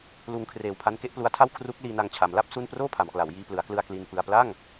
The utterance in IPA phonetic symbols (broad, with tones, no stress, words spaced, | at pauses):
luː˧ŋkʰreː˨˩wpʰa˦˥nke˥˩ʔ plu˦˥a̯tʰa˥˩w kʰru˦˥k̚liː˧na˧ŋ t͡ɕʰa˩˦mla˥˩p̚ su˥˩n proː˥˩pʰa˩˦mkla˩˦w jiː˧plɯ˩˦a̯klɯ˧a̯ kli˧npɯ˧a̯ pla˥˩ŋ